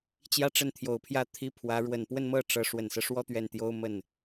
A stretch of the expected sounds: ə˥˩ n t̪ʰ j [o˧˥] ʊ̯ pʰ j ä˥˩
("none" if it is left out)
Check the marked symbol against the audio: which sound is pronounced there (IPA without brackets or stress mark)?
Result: o˨˩